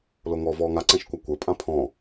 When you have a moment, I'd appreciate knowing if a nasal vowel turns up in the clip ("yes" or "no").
yes